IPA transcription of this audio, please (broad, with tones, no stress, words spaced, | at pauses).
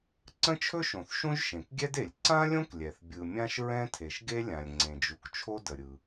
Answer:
ǀə̃˥t͡ʃʰɵ˥ʃõ˩θ ʃũ˥ʒʃẽ˩kɡʲɛ˥de˩lʲ ǀã˥lʲõ˥klʲɛ˩θ bʲɯ˩mʲã˥ʃɹɛ̃˥ tʰe˩ʃɡe˥lʲã˩lʲ ŋ͡ǀẽ˩d͡ʒu˩k t͡ʃʰo˥də˩ɾʲɯ˩